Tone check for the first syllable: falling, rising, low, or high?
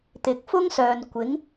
rising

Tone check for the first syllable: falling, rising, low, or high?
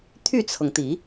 falling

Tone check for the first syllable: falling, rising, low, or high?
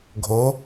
rising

